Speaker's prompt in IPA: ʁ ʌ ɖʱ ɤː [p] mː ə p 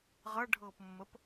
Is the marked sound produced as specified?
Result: yes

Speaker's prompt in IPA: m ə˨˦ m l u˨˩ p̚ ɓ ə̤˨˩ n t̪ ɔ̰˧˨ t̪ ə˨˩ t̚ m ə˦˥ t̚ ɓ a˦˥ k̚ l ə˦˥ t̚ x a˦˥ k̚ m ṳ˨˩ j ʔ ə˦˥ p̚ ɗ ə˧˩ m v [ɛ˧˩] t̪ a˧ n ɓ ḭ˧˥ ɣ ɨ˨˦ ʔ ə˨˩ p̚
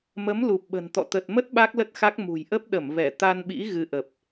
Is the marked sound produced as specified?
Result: yes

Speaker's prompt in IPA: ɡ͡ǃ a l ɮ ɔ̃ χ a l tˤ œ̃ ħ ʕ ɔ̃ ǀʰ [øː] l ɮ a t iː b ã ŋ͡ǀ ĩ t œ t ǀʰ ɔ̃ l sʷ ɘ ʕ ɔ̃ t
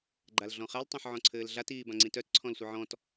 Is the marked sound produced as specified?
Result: no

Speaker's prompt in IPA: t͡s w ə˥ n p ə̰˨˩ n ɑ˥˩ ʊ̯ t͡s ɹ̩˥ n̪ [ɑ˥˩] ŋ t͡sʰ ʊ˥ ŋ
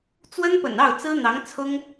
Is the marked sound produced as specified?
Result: no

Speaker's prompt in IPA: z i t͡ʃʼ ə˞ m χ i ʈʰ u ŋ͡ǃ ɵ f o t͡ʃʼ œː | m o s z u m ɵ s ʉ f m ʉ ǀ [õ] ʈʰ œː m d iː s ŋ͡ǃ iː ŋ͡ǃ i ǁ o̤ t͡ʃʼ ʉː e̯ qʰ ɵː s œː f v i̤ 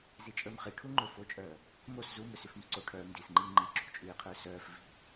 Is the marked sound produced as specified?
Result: no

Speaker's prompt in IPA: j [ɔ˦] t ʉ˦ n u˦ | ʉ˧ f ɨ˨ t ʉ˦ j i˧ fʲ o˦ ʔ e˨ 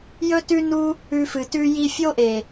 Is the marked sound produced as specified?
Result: no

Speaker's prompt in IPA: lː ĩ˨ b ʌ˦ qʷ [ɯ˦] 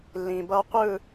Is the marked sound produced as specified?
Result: no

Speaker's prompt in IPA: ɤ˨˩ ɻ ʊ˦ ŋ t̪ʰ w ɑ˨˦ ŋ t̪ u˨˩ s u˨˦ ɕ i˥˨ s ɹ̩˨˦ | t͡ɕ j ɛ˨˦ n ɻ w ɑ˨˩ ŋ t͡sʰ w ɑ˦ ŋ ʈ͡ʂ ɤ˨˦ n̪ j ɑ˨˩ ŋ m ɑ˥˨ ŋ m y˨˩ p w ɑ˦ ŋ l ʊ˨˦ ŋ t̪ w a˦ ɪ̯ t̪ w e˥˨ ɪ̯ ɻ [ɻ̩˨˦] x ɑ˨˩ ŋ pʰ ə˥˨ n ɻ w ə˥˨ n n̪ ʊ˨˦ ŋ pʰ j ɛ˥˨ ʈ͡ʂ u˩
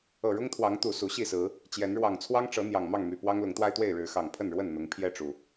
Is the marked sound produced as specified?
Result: yes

